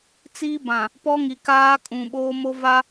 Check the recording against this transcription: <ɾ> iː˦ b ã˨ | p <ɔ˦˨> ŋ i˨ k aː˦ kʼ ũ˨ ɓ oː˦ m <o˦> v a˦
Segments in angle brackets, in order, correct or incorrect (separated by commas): incorrect, incorrect, correct